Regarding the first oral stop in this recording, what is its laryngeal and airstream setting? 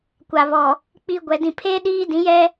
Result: plain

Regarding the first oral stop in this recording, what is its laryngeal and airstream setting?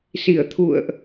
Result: aspirated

